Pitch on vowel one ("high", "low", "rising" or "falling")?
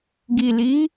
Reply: low